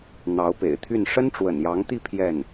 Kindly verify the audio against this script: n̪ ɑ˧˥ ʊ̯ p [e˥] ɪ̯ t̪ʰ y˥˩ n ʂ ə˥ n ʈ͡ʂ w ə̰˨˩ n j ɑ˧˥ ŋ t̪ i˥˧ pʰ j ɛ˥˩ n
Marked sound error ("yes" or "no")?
yes